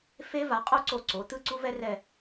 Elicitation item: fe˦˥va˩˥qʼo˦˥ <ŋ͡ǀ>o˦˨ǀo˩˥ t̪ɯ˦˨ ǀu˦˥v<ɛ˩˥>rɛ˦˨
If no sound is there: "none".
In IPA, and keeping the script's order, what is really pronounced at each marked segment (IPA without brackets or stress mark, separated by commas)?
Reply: ǀ, ɛ˦˥